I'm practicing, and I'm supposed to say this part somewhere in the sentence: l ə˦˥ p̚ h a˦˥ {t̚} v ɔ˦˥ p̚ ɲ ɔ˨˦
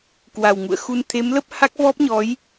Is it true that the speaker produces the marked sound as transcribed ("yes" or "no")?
no